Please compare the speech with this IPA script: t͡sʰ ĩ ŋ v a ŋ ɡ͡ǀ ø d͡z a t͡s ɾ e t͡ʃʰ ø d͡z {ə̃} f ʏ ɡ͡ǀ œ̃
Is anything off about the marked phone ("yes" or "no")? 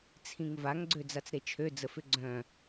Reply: yes